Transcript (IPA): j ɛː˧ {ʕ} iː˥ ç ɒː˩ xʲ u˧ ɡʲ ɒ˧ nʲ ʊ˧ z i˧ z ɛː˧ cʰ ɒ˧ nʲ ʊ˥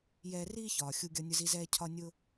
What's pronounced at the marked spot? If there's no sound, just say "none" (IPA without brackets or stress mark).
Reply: r